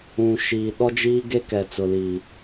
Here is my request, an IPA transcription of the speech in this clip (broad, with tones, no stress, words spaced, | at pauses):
ũ˨ʃiː˨ ɗɔ˦d͡ʒiː˦ɡe˦ kɛ˨t͡sʊ˨liː˨